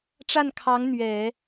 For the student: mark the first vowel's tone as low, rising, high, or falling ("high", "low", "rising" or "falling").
falling